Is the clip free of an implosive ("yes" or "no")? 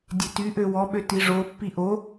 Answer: no